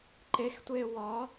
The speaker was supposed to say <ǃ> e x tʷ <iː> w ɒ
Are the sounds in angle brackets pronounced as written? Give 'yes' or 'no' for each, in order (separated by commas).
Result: yes, no